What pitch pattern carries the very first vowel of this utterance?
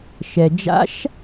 low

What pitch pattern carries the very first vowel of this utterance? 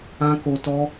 high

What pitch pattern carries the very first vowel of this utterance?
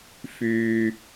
low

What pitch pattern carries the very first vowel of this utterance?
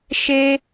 high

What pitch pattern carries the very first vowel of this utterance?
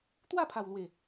falling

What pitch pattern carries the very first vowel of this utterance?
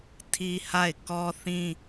high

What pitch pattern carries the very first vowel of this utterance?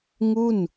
falling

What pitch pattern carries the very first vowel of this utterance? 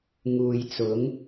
low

